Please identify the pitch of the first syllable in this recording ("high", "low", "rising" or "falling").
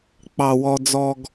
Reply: low